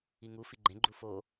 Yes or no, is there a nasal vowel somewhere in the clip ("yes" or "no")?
yes